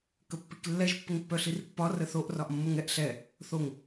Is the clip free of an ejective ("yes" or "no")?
yes